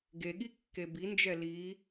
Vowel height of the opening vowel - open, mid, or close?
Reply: mid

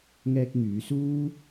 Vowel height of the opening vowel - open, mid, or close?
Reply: mid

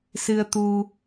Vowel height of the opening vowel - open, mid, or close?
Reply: close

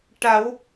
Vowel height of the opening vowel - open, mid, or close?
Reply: open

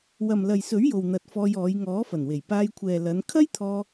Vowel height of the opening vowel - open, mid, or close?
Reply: open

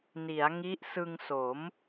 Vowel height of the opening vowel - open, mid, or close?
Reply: close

